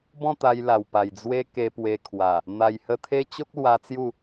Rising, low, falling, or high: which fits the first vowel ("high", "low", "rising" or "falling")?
falling